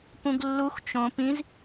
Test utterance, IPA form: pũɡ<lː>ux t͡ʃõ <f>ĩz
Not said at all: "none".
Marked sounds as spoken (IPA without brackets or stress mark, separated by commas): lː, p